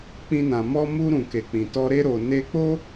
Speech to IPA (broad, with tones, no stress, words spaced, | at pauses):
k͡pĩ˦nã˧ mɔ˧mu˧ɾũ˨ ke˨k͡pĩ˨tɔ˧ ɾe˧ɾo˨ ne˧k͡po˦